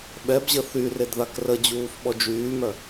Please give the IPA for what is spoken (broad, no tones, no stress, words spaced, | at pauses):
ɓɛbʑə θyred ðakrəd͡ʑuːf ɓɔd͡ʒyːmœ